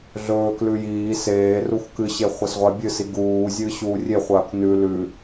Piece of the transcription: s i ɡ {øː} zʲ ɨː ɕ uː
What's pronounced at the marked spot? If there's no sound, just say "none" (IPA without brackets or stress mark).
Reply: uː